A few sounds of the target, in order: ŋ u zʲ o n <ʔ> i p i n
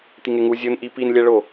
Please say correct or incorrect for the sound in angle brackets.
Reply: correct